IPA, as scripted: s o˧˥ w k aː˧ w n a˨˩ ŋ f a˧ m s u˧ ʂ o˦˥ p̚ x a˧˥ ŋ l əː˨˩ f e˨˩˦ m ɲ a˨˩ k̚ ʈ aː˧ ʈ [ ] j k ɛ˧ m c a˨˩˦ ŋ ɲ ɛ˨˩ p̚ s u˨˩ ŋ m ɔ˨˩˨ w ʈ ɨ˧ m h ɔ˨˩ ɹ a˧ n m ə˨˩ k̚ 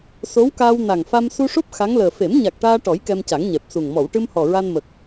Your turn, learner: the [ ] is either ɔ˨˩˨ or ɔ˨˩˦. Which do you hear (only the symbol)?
ɔ˨˩˦